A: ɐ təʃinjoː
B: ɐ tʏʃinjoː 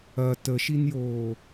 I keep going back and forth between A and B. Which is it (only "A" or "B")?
A